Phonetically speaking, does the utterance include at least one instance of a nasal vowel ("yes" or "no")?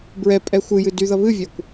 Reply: no